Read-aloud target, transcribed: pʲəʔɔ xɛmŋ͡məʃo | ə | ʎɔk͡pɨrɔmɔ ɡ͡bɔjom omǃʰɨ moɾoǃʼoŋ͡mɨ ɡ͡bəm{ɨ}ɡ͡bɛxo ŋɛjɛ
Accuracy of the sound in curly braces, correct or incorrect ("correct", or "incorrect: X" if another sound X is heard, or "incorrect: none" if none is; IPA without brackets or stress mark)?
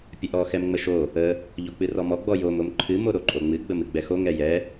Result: correct